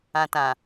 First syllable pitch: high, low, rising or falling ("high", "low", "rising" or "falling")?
low